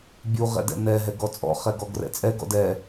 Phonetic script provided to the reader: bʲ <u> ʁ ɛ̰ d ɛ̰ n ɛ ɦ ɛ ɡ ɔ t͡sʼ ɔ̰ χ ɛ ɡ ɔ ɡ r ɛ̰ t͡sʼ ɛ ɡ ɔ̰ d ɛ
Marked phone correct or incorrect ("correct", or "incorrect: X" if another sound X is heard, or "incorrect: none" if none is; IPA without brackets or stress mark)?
correct